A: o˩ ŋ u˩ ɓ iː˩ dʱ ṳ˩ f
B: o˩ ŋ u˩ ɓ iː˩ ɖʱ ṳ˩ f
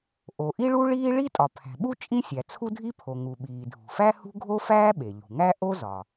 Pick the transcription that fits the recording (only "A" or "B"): A